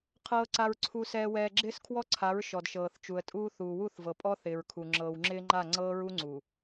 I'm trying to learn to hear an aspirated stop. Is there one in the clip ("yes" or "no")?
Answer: yes